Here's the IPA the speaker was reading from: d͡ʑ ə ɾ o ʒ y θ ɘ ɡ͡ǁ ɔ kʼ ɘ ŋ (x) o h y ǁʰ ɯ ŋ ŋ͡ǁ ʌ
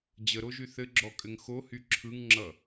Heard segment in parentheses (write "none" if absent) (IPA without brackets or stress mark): x